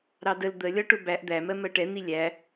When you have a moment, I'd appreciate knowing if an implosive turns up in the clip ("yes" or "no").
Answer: no